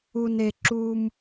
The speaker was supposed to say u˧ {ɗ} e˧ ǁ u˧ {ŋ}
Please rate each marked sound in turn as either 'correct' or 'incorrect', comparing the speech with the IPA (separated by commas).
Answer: incorrect, incorrect